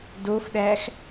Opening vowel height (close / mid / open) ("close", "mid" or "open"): mid